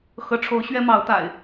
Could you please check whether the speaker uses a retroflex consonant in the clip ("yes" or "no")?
yes